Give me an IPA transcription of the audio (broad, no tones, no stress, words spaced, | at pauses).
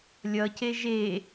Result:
lʲʌce ʒe